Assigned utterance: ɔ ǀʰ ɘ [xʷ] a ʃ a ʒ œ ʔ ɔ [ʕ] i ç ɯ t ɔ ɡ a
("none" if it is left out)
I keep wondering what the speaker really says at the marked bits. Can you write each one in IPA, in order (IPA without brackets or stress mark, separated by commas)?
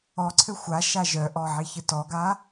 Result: xʷ, ʕ